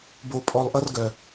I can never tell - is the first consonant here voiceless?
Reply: no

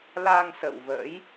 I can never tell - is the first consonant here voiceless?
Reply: no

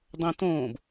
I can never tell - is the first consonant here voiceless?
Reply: no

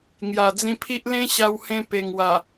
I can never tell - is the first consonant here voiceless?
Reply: no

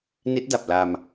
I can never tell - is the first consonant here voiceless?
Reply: no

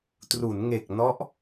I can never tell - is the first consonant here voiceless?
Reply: yes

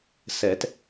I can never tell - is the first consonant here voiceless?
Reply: yes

